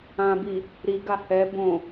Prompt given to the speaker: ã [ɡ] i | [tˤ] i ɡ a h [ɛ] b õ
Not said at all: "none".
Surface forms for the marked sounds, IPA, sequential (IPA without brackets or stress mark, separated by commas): b, ɾ, ɛ